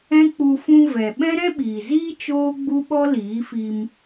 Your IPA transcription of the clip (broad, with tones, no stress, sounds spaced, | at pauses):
ɛ̃˦ k͡p u˧ f ũ˧ v ɛ˨ ɓ ɛ̃˦ ɾ ɛ̃˦ ɓ iː˨ z iː˦ t͡ʃ oː˦ ɡ͡b u˦ ɓ ɔ˦ l iː˨˦ f i˧ m